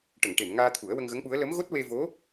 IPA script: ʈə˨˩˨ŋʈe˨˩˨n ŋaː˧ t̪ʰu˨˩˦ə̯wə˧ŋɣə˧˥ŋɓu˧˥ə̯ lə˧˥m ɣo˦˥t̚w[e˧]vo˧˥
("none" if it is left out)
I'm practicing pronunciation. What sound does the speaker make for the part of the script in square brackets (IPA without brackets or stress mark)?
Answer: e˧